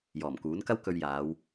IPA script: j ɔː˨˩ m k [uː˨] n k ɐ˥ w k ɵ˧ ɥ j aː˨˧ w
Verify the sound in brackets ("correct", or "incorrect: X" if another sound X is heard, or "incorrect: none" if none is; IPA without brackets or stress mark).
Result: incorrect: uː˨˥